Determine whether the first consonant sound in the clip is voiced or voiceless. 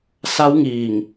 voiceless